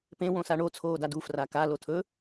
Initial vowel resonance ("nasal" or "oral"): nasal